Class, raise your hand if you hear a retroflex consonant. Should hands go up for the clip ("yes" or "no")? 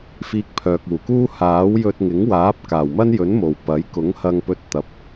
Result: no